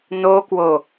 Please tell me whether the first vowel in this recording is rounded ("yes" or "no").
yes